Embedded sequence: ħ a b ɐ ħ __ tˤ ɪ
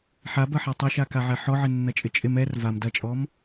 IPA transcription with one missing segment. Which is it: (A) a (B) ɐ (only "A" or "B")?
A